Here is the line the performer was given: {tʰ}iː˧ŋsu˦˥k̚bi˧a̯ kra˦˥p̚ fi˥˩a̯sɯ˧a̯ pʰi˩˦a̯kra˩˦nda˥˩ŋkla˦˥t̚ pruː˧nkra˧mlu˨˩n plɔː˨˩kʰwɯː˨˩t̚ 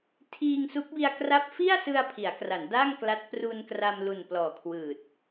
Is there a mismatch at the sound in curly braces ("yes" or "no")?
no